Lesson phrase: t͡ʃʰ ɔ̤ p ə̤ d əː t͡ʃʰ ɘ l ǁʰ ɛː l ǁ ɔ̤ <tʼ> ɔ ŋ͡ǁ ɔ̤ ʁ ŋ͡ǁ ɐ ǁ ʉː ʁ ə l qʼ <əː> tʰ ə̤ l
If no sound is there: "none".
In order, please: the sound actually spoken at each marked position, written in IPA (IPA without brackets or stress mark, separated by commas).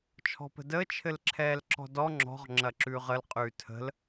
d, ʉː